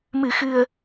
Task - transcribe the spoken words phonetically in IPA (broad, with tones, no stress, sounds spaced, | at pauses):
m ɨ˨˩˨ x ɨ˨˩ ə̯